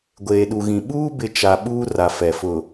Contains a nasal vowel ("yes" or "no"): yes